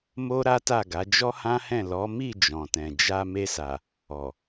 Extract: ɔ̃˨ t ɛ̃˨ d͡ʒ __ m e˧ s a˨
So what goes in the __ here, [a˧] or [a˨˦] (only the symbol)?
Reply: a˧